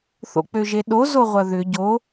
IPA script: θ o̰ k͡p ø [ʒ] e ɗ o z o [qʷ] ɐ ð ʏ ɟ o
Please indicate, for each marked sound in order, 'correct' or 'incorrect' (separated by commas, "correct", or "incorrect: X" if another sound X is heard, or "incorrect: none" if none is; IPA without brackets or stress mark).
correct, incorrect: ʁʷ